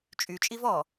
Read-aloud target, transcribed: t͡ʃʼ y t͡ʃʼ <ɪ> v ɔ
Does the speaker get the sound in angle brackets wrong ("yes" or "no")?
yes